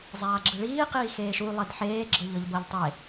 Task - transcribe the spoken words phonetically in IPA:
zˤ aː ɡ͡ǁ ɯ ɭ iː q iː x eː ʃ u lˠ e d ħ eː ɡ͡ǁ ɤ ʎ ɤ ʎ b ɤ ʎ tˤ e

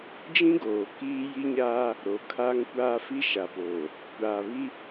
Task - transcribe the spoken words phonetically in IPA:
d͡ʒ ĩ˦ ɡ oː˨ k iː˦ j i˦ ɲ aː˦ | ɾ o˨ kʰ aː˦ ŋ kʷ aː˦ f i˦ ʃ a˨ p oː˨ | kʷ aː˨ β i˦

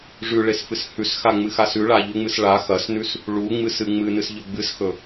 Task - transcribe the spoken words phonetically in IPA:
ʐ ʉ ɭ e s f ɨ s h ʉ s x a ŋ͡m ɨ x a s ʉ ɭ a ʎ u ŋ͡m ɨ s ɭ a x ɐ s n ʉ s | ɭ u ŋ͡m ɨ s ɨ ŋ͡m ɨ n ɨ s ʎ ɵ ɡ͡b ɨ s x ɵ

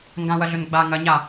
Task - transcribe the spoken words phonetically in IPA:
ŋ ɡ ã w ɐ ɮ ɵ n ɡ͡b a ŋ ɐ ɲ a

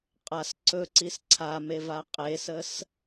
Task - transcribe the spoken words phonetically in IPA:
qʼ a s ǀ ɵ ǀ i s ǀʰ a m e v a qʼ e s ə s

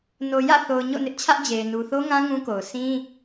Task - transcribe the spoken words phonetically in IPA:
n o˨ j ä̰˦˨ θ o˨ ʊ̯ ɲ o̰˦˨ n ɪ˦ ʔ t͡ɕʰ ä˦ ʔ d͡ʑ e˨ ɪ̯ n u˨ θ o˦ ŋ ã˦ ŋ ũ˦ k o˨ ʊ̯ s ĩ˦

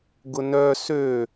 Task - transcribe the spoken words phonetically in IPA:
ɡ ʊ n œ s ø

